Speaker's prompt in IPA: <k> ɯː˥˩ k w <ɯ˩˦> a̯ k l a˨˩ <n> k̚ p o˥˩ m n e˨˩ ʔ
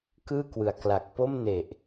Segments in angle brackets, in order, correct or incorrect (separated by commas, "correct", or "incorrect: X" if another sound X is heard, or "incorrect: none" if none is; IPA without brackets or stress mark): correct, correct, incorrect: none